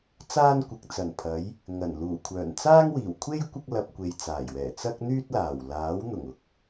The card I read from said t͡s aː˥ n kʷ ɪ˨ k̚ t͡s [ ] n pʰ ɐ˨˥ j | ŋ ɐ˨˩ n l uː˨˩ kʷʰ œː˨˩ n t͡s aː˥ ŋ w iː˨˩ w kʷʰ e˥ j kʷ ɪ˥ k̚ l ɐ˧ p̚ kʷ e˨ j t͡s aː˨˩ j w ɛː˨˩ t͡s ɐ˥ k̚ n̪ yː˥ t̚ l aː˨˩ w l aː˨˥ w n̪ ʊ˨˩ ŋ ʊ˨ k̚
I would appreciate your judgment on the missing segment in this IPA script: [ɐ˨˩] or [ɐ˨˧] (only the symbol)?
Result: ɐ˨˩